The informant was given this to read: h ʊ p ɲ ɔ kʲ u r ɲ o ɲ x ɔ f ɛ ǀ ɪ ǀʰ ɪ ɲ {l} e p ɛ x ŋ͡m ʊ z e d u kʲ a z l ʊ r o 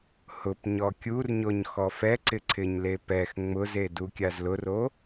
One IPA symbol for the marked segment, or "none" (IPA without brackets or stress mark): l